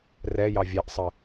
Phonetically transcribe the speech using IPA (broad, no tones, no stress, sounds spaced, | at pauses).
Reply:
r ɛ j ɑ vʲ ɛ ʔ sˤ ə